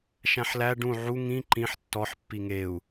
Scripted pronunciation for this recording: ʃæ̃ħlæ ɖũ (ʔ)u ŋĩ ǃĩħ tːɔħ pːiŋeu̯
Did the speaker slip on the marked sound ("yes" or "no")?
yes